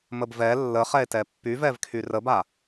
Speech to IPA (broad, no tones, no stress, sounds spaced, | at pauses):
m ə b v ɛ lː ə χ ɛ e̯ t ɛ pː y v ɛ v kʰ y r ə b a